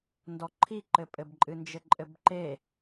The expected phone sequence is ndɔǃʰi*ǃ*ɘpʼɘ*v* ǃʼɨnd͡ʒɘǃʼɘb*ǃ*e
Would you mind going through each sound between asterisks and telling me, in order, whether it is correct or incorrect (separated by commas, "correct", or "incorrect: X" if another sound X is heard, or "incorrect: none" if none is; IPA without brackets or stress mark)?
correct, incorrect: b, correct